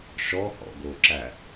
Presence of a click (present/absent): present